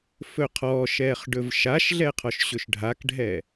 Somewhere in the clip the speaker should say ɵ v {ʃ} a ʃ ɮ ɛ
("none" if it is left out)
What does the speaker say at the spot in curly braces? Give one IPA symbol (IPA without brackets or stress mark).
ʃ